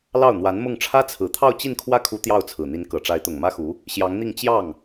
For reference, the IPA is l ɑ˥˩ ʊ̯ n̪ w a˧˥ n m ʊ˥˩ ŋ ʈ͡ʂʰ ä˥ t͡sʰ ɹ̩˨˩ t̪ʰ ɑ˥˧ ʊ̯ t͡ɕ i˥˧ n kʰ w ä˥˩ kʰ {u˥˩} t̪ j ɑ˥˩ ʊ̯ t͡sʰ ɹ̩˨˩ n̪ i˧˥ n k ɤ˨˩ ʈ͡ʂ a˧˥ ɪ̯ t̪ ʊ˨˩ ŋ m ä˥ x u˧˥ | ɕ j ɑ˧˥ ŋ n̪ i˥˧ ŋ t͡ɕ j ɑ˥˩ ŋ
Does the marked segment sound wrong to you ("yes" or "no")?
yes